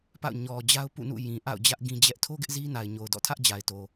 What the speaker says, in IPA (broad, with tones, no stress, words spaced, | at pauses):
pa̰˦˨ʊ̯ ɲɔ˨d͡ʑa˦ʊ̯ pṵ˦˨nṵ˦˨ jĩ˨ʔa̰˦˨ʊ̯d͡ʑä˦ʔ ɡĩ˦d͡ʑɛ˦ʔ tʰo˦ ɡɪ˦ʔzi˦na˨ɪ̯ ɲo˨ʊ̯dɔ̰˦˨tʰä˦ʔ d͡ʑa˨ɪ̯to˨